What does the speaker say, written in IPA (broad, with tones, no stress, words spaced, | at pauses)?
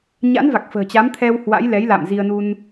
ɲa̰˧˥nva˨˩k̚ fə̤ː˨˩t͡ɕa˨˦mt̪ʰɛ˧w hwa̰˧˥jlɛ˨˦jla̰˧˨m zi˧ə̯nu˧n